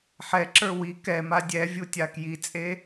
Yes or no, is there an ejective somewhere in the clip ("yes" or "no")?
yes